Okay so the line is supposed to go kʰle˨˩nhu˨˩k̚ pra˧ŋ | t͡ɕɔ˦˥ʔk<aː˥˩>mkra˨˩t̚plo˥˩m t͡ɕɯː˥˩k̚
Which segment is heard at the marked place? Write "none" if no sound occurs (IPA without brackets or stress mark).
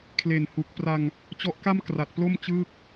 a˥˩